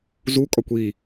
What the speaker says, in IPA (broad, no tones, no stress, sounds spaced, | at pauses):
z u kʼ ɒ kʷ i